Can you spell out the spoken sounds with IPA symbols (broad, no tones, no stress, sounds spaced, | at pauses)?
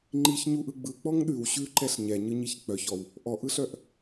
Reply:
ŋ͡ǃ i ç ɲ u ʔ ɯ ɡ͡b ɯ k͡p ɔ ŋ ɗ ʉ w ɕ ʉ ǃ ɛ ɬ ɲ ɛ ɲ ɯ ɲ i ç k͡p œ ç ɔ w | ʔ ɔ ʔ ɯ ɬ œ ʔ